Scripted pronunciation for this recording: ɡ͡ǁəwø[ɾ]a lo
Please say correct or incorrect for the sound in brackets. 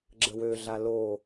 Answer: incorrect: ɮ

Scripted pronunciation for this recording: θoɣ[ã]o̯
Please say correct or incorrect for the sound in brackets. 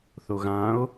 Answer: correct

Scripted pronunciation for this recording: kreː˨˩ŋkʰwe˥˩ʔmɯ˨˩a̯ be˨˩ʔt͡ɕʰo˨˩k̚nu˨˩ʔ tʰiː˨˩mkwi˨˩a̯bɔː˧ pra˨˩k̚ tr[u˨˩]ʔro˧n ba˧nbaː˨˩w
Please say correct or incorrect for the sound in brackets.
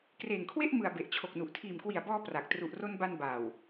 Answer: correct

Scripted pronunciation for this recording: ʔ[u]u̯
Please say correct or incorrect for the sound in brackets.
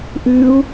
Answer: incorrect: ʉ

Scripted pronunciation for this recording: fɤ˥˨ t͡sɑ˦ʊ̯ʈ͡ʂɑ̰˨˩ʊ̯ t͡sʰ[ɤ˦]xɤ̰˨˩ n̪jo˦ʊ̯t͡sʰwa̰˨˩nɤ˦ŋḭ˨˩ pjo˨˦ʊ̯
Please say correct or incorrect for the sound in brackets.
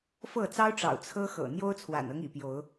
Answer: correct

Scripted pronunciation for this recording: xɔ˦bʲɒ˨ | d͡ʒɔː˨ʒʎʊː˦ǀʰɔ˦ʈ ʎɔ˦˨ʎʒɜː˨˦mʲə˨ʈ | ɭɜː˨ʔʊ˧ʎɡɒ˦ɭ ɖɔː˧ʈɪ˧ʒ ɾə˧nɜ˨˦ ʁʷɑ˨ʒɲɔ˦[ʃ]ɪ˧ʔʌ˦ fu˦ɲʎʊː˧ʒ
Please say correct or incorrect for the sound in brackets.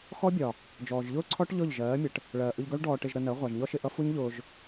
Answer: correct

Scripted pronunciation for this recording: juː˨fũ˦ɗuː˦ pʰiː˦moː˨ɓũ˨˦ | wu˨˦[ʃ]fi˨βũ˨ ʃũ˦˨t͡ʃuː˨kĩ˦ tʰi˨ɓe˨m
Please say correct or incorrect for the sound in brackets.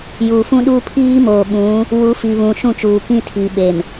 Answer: incorrect: none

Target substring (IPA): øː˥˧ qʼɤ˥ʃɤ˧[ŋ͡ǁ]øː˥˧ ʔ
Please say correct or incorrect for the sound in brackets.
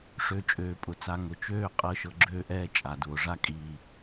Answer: incorrect: ɡ͡ǁ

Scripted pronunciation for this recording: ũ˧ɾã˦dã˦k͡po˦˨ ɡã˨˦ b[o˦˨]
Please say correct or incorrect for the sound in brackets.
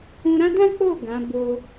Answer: incorrect: o˧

